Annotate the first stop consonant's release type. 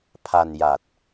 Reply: aspirated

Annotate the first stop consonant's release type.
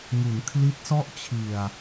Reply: aspirated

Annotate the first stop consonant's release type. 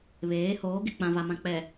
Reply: plain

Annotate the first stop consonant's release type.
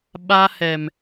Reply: implosive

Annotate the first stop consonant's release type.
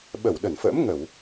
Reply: implosive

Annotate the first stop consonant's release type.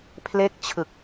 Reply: aspirated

